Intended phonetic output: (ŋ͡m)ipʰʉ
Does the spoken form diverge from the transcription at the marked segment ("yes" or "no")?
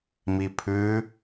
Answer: yes